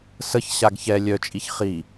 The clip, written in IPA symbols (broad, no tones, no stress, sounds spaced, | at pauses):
s ə ç ɕ a ɡ ç ɛ lʲ œ t͡ʃʼ i ç χ i